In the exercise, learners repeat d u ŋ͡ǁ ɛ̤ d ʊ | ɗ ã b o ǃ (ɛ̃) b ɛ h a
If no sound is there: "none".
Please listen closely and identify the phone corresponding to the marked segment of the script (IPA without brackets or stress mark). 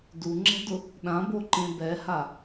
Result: ẽ